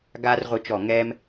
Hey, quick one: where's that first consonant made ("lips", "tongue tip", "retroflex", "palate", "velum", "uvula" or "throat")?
velum